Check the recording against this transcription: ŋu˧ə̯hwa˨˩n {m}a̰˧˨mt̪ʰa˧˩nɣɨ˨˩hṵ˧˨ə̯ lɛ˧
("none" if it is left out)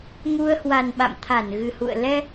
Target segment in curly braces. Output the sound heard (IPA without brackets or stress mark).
ɓ